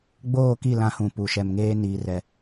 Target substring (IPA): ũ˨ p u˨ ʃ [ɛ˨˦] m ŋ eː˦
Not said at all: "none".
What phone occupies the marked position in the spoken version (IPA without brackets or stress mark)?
ɛ˨